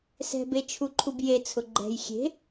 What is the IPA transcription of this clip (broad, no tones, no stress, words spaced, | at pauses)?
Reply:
sɛ̤bet͡ʃʰuǃʰub jet͡sʰʊ ɡ͡ǃɛ̤j xʲe̤